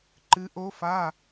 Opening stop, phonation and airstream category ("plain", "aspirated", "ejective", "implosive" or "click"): click